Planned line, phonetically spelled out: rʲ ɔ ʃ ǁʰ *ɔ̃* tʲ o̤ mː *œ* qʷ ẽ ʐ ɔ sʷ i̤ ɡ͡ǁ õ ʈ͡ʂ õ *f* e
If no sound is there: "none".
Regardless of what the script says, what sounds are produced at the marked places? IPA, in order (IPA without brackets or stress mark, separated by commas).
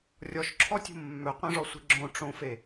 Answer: ɔ, œ, f